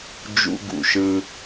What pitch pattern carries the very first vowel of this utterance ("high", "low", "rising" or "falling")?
high